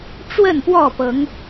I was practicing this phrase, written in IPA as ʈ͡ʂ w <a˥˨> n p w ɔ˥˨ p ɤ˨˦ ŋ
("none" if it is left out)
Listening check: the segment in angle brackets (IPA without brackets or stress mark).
ə˥˨